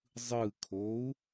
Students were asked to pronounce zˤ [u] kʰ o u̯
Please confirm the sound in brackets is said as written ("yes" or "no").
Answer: no